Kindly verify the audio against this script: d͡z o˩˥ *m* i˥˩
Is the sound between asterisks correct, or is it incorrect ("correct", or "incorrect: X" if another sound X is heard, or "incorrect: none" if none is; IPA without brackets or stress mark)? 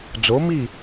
correct